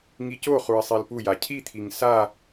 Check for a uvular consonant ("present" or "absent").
present